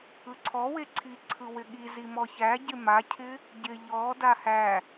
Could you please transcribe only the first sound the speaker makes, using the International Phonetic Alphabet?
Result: ɯ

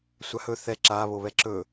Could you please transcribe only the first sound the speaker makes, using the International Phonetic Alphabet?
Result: sʷ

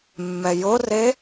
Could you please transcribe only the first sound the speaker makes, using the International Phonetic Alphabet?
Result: mː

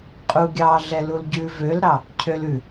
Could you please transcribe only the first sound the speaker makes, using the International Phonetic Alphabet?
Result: qʼ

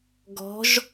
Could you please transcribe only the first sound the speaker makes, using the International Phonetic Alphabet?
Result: ɡ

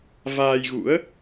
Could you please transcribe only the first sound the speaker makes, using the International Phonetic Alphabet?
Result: v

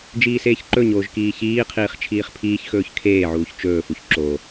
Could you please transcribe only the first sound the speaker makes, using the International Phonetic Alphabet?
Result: d͡ʒ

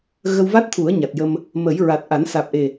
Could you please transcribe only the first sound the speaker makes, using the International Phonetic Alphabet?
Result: ɣ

